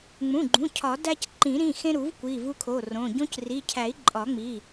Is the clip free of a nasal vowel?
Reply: no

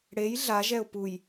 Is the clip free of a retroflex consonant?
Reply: no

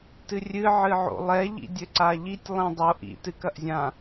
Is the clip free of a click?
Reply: no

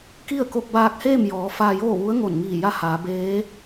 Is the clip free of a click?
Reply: yes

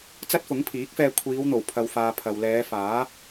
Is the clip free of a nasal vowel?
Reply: yes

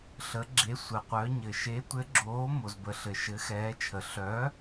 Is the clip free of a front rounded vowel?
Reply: no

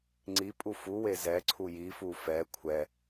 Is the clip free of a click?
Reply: no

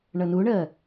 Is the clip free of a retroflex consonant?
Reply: no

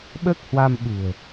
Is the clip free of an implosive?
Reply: no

